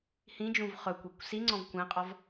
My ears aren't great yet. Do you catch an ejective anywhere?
yes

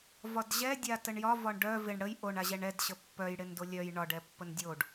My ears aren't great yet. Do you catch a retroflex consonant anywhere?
yes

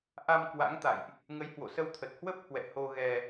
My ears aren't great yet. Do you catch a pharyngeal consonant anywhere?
no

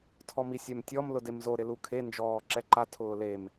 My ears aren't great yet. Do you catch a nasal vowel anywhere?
no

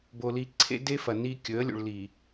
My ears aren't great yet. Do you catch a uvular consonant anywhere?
no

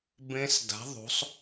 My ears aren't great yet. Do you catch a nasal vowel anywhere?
yes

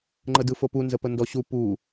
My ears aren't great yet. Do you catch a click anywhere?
yes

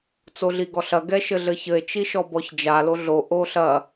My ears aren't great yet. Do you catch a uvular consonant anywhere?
no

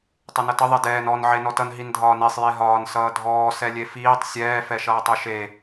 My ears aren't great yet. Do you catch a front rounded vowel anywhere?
no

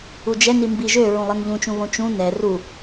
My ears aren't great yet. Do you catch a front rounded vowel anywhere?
yes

